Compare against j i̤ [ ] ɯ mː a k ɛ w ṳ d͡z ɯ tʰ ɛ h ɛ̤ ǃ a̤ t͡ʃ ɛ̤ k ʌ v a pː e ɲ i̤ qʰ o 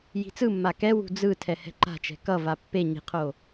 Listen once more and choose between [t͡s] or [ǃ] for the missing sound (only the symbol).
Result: t͡s